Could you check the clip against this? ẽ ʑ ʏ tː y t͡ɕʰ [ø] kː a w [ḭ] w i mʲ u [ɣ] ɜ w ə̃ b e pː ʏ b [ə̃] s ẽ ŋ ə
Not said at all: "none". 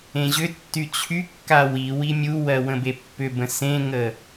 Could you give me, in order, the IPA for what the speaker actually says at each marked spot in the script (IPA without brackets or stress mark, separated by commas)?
y, i, w, ə̃